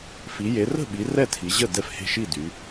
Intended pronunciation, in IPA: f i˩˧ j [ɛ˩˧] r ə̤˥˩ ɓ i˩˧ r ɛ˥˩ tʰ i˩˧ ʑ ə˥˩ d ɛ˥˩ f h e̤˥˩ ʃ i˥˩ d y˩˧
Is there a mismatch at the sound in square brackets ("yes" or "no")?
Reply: yes